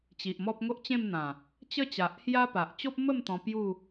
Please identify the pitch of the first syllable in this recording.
low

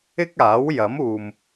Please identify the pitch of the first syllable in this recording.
high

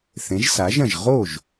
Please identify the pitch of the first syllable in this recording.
rising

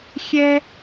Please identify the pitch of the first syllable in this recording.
high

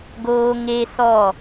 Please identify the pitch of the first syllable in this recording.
high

